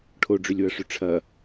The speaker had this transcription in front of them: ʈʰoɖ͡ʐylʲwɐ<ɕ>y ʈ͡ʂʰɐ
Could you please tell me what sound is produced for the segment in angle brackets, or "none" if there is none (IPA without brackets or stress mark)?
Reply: ʂ